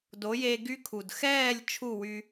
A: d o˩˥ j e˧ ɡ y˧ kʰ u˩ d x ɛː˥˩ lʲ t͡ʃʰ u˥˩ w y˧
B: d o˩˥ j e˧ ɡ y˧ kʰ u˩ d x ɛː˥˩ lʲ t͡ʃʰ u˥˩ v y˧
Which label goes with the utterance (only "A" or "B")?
A